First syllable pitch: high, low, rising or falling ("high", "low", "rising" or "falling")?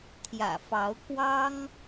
low